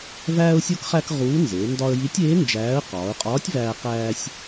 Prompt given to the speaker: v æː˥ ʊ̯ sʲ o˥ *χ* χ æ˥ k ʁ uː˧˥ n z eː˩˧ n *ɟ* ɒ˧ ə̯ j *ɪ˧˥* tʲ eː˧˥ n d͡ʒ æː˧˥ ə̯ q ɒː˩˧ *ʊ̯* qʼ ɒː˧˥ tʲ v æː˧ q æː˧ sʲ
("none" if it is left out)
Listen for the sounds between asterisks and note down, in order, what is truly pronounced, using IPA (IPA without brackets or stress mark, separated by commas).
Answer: k, d, i˧˥, ʊ̯